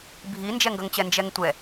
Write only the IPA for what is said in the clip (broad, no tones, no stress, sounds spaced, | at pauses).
bʱ i n d͡ʒ ɛ ŋ ɡ ʌ ŋ t͡ɕ ɛ n d͡ʒ ɛ ŋ tʷ ɛ